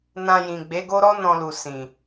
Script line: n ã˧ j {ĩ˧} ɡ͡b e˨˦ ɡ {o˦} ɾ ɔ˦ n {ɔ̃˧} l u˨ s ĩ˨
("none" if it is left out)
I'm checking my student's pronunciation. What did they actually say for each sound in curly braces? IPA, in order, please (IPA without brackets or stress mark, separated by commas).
ĩ˨, o˦, ɔ̃˧